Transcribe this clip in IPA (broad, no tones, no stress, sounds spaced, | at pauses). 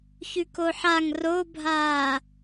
ç ʉ k o ħ a ŋ r o bʱ aː